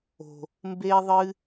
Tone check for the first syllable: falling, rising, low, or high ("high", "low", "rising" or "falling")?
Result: low